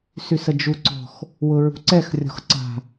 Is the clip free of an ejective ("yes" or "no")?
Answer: yes